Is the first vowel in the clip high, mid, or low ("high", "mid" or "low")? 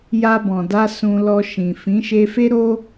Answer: low